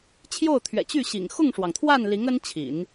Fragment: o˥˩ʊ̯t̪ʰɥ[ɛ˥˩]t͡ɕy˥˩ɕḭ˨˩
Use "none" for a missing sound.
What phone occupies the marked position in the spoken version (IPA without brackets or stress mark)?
ɛ̰˨˩